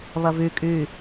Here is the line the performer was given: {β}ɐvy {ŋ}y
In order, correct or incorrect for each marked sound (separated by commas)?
correct, incorrect